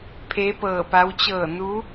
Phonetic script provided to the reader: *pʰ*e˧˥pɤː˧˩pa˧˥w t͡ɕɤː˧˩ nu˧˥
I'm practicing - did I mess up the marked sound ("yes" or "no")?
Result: no